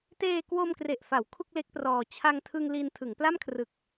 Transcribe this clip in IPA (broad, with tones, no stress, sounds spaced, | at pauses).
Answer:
t eː˧ k w o˧ m k r e˨˩ ʔ f a˩˦ w kʰ u˥˩ k̚ l e˦˥ k̚ p r ɔː˧ t͡ɕʰ a˧ ŋ tʰ ɯ˧ ŋ l i˧ n tʰ ɯ˩˦ ŋ p l a˥˩ m kʰ r ɯ˨˩ k̚